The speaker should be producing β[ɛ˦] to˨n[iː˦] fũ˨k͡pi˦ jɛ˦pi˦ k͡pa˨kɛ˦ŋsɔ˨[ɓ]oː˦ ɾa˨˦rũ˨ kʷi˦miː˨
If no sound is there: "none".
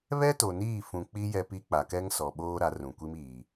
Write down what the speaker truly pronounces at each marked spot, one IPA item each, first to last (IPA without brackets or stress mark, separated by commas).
ɛ˦, iː˦˨, ɓ